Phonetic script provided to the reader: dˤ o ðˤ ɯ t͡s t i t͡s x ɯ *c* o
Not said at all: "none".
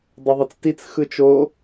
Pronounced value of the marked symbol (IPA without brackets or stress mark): t͡ʃ